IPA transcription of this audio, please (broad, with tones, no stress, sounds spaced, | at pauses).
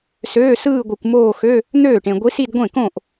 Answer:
s øː˧˥˧ s ɯː˥˧ ɡʷ i˨ kʷ m oː˥˧ x ø˧˥˧ | n̪ øː˥˩ ʈ ẽ˨ ɡʷ i˧˥ s i˥˧ d ɡʷ ẽ˥˩ k õ˥˩ ʔ